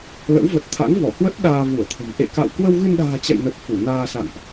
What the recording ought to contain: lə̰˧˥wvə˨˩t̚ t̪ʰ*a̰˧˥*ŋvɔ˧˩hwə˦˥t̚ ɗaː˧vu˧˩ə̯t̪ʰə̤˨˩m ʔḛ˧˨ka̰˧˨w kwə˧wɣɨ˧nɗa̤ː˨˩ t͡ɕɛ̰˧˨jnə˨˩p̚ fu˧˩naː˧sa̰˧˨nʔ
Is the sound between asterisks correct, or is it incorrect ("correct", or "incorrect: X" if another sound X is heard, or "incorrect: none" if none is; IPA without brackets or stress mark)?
correct